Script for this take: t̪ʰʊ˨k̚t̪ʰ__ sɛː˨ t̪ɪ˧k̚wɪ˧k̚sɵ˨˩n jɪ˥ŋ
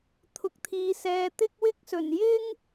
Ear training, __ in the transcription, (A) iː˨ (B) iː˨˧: A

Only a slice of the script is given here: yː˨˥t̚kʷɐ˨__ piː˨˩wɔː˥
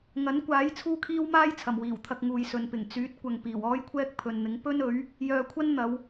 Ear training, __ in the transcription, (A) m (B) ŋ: B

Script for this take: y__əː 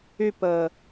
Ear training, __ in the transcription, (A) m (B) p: B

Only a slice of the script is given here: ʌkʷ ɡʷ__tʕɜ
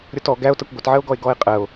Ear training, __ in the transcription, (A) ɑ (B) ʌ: B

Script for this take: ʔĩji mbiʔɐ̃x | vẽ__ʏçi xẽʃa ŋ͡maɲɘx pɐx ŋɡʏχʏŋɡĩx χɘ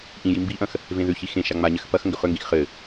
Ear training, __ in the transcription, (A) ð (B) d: A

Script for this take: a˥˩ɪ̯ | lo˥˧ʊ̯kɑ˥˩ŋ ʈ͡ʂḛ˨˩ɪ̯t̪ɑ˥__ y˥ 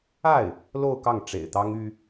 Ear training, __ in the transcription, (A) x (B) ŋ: B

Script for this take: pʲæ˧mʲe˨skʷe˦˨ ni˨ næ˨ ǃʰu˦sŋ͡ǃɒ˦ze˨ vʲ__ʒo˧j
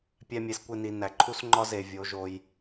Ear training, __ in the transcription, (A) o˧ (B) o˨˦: B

